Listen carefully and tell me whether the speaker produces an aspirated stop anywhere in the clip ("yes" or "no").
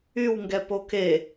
no